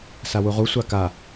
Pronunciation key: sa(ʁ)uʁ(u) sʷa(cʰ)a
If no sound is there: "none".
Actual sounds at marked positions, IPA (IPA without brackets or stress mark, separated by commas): w, u, k